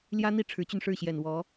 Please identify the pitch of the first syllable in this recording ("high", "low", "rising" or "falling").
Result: high